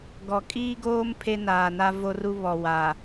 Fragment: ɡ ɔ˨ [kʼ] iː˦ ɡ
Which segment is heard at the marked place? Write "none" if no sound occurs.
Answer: kʼ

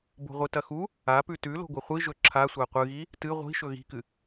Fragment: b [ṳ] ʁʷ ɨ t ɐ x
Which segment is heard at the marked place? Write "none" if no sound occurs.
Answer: o̤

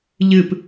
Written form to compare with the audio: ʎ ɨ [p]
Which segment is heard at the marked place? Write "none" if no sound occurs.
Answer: p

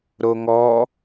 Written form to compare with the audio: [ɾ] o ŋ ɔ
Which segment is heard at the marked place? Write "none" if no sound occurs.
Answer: ɾ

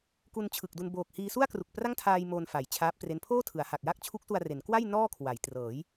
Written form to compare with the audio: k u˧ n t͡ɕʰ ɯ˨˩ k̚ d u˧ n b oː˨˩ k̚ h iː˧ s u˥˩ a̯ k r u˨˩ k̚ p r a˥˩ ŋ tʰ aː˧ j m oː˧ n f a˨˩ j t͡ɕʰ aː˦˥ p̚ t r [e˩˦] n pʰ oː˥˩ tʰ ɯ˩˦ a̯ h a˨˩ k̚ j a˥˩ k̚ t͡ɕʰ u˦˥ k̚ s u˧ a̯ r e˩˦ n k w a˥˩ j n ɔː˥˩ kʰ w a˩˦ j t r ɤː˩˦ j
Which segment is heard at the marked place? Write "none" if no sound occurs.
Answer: e˦˥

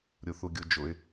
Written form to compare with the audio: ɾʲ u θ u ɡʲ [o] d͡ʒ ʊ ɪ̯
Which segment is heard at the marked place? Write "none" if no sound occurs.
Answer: u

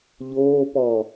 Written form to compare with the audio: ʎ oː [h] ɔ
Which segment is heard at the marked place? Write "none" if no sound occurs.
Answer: p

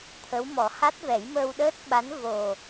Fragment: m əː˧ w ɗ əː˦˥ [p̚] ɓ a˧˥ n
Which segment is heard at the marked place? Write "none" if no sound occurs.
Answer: t̚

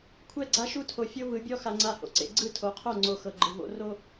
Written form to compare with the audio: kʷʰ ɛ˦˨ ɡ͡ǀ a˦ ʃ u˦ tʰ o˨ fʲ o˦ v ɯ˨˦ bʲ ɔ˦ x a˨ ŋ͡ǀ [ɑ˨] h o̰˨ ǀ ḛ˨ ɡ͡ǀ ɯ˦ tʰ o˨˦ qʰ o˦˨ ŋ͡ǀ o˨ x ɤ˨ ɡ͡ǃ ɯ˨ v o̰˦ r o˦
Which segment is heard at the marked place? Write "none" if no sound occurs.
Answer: a˨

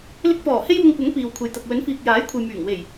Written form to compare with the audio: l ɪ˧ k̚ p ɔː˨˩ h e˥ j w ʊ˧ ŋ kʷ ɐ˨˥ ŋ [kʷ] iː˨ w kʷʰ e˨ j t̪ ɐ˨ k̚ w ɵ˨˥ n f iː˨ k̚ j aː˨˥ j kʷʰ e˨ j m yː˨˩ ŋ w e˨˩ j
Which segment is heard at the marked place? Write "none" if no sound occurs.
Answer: p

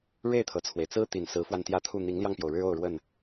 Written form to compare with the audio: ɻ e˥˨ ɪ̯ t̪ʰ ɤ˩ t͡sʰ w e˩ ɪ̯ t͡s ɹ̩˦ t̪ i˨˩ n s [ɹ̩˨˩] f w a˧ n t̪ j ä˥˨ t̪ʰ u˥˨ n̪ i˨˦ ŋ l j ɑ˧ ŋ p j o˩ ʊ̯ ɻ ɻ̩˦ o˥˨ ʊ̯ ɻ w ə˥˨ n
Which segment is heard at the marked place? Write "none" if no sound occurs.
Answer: ɹ̩˨˦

